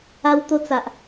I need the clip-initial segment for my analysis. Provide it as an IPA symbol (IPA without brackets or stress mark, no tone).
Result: a